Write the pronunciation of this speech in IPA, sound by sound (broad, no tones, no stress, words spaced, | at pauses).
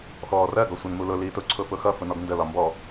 xɔːrɜ ɡɒsʷɛnmulʊ liːtʊ ǀʰʊfʊxʌ fʊnɔɡndə lɒmbɔ